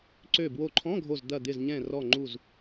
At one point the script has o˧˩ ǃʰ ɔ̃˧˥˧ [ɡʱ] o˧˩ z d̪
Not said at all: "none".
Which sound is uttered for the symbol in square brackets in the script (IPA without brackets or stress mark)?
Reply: ɡʱ